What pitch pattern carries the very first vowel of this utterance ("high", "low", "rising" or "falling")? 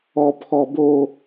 high